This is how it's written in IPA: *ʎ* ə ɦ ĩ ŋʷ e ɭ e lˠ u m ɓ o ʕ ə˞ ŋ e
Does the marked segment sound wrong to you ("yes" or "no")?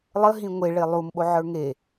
yes